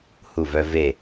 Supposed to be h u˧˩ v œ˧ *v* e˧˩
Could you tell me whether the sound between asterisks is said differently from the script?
no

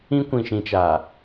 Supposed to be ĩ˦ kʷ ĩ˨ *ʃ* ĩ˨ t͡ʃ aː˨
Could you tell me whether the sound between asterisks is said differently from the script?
no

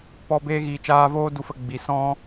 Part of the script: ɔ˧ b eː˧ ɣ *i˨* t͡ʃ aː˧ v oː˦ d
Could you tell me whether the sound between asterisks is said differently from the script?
yes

